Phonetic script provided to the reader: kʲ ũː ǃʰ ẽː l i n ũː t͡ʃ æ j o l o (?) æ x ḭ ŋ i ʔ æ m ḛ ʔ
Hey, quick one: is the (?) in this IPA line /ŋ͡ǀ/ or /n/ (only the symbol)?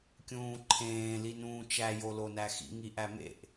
n